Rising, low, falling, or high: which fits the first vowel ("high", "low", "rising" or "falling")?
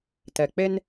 low